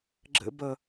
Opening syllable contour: high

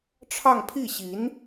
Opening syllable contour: falling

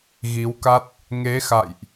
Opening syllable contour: rising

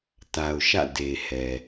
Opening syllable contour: low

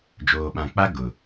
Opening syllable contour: low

